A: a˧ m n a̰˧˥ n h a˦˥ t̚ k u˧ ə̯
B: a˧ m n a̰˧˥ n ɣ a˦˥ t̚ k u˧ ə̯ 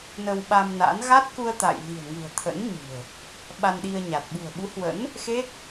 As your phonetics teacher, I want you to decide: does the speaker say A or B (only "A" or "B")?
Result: B